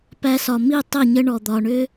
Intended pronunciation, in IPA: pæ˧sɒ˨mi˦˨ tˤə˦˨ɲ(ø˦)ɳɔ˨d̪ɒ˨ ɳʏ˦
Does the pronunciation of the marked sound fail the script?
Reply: yes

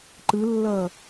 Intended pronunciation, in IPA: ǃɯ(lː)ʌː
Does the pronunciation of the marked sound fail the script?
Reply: no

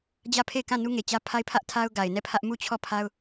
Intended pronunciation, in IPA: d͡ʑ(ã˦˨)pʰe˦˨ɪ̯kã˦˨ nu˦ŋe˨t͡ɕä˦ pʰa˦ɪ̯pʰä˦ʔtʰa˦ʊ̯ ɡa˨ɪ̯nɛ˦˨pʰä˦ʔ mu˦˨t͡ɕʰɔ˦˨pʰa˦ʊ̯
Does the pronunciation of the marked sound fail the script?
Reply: yes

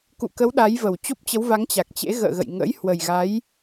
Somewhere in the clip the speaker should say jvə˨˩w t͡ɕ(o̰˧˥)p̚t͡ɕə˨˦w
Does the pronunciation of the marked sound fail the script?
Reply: yes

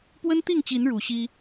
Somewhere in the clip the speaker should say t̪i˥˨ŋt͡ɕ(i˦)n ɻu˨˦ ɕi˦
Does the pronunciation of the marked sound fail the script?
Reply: yes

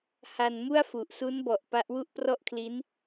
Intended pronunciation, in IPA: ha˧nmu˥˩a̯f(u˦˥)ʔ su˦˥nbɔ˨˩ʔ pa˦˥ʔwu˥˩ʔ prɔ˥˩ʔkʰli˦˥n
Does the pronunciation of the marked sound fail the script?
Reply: yes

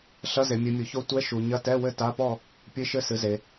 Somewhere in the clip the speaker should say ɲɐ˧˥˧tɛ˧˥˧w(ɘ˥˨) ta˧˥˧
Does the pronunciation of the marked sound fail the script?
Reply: no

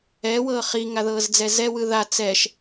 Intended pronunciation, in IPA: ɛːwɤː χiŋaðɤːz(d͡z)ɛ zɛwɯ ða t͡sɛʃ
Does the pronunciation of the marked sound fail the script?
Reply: no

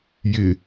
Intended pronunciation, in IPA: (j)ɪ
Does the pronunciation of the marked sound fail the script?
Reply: no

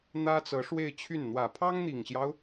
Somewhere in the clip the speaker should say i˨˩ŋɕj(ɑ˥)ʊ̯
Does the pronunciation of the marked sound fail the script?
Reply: yes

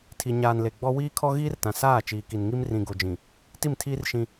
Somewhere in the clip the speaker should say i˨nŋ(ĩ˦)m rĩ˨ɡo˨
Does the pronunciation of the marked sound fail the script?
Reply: yes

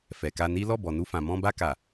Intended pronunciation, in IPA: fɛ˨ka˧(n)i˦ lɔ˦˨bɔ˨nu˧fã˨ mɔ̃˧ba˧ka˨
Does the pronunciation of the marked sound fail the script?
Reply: no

